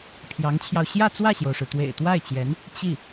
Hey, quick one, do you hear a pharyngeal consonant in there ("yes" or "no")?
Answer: no